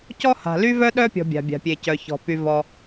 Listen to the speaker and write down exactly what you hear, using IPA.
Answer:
c ɔ˥ h a̤˩ l y˥ v œ˥ ɗ œ˥ pʲ ɔ̤˩ bʲ a̤˩ bʲ a̤˩ pʲ e˩ c œ˩ ç ɔ̤˩ p y˩ v ɔ˩

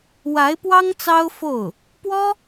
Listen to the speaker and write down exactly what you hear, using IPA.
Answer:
w a˧˥ ɪ̯ p w ɑ˥ ŋ t͡s ɑ˥ ʊ̯ f o˥˩ ʊ̯ | p w ɔ˥

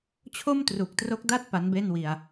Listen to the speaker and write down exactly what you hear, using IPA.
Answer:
t͡ɕʰ o˥˩ m t r u˨˩ k̚ t r o˦˥ k̚ d a˥˩ t̚ p a˦˥ n b e˥˩ n w i˧ a̯

